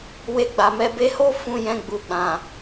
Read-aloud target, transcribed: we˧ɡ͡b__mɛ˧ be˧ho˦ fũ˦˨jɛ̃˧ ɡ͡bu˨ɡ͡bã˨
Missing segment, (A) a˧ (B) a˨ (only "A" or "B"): B